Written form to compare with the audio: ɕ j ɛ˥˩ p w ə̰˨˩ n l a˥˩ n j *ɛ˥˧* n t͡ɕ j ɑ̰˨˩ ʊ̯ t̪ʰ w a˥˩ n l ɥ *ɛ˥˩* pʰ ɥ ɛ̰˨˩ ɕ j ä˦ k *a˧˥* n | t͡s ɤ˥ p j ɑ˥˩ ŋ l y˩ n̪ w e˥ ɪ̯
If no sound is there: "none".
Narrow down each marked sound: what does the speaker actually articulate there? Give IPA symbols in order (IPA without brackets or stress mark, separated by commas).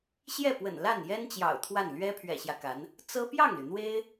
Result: ɛ˥, ɛ˥, a˧˥